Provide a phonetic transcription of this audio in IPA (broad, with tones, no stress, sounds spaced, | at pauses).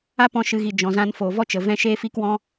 a˦ p ɔ̃˧ ʃ ɨ˨ ɣ i˨ d͡ʒ ɔ̃˨ z ã˧ n f oː˨ v ɔ˦ t͡ʃ ə˨ v ɛ̃˦ ʃ eː˦ f iː˦ k w ɔ̃˦